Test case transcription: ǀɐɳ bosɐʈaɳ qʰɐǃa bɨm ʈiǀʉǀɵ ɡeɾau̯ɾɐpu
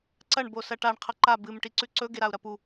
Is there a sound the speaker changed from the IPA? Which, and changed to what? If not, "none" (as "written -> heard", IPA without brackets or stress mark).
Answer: none